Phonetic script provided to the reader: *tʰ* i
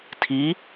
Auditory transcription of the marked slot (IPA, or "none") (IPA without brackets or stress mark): tʰ